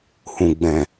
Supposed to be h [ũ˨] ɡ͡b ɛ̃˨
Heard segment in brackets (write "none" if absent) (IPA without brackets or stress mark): ũ˨